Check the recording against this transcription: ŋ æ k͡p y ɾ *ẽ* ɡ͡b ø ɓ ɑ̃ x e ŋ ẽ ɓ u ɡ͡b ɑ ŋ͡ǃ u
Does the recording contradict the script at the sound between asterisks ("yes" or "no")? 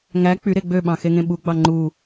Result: yes